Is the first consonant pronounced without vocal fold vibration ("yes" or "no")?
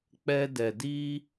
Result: yes